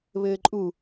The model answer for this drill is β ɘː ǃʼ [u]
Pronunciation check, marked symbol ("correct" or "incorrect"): correct